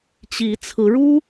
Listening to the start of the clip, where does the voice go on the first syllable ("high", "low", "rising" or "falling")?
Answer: rising